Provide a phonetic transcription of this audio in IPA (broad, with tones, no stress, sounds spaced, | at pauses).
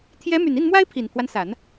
t̪ʰ j ɛ˧˥ m y˨˩ n i˥˩ n m w a˥ ɪ̯ pʰ i˨˩ n pʰ w a˦ n s a˨˩˦ n